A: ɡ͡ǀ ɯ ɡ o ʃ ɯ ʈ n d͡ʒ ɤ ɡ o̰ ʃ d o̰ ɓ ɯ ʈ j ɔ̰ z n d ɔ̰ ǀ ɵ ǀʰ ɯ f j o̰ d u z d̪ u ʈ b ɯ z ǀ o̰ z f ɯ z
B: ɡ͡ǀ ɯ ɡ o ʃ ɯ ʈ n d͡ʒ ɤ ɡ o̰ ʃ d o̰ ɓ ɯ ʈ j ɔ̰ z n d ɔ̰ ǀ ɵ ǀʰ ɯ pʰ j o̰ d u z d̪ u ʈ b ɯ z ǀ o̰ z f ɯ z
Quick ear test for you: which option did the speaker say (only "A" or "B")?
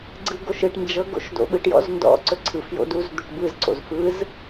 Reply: A